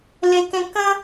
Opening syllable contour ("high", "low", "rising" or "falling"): high